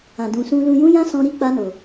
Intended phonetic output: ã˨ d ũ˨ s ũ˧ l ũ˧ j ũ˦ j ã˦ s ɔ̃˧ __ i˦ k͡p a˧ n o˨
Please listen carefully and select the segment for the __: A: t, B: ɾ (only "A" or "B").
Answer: B